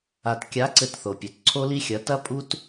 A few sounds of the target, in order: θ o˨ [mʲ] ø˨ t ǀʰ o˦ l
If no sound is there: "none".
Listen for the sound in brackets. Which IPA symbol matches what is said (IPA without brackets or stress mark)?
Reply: pʲ